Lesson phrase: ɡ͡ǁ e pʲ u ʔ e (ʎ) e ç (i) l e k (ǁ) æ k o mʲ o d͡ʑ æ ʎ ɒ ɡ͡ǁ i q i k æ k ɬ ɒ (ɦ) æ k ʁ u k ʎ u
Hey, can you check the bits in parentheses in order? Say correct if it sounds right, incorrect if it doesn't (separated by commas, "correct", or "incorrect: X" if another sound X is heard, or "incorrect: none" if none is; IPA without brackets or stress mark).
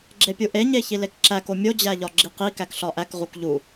incorrect: ɲ, correct, correct, incorrect: ʔ